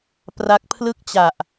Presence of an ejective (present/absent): absent